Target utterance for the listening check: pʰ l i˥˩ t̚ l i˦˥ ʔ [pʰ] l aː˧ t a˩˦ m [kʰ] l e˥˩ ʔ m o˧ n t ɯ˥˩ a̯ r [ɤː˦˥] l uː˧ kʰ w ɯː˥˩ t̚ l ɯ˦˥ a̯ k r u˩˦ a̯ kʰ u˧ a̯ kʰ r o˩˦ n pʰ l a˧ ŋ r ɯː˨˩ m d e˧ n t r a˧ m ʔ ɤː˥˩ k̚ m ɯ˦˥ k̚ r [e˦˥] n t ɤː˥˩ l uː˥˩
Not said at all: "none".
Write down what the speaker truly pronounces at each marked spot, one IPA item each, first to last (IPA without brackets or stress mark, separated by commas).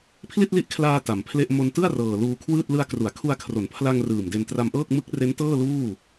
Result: kʰ, pʰ, ɤː˨˩, e˦˥